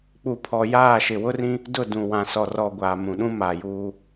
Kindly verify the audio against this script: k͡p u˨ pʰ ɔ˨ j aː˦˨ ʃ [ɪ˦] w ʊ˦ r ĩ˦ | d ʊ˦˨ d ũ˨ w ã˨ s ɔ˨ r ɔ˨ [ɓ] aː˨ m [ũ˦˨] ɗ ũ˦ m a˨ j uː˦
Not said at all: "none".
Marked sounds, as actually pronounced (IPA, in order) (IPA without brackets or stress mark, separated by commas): ɪ˨, ɡʷ, ũ˨